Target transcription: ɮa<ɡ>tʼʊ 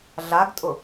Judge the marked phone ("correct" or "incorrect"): correct